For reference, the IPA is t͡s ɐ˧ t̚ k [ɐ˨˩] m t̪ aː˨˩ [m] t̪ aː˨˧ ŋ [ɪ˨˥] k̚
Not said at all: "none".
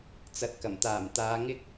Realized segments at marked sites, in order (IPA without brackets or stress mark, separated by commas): ɐ˨˩, m, ɪ˥